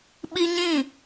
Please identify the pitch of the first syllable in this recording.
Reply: high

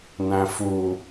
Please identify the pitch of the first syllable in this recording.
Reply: low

